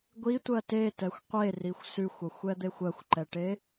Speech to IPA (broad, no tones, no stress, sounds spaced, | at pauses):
ɡʷ i tʷ ɜ t e t ɛ xʷ qʷ e r i xʷ s ʉ xʷ ʌ xʷ ɛ d̪ e xʷ ɜ xʷ ǃ ɛ ʈ e